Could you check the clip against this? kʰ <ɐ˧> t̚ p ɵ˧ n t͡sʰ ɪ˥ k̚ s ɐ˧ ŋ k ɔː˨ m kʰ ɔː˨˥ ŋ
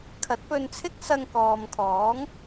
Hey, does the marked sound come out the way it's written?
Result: no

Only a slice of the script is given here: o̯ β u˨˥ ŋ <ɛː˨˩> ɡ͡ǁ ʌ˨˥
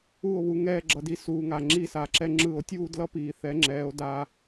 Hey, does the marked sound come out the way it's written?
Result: no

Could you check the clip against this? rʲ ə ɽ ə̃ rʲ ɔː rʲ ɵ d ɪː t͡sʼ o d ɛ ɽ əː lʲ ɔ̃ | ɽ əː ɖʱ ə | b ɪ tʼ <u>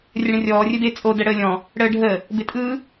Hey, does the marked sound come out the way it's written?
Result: no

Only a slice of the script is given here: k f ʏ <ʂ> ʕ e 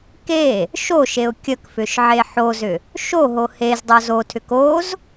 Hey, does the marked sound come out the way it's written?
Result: no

